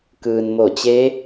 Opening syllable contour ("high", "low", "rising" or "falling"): low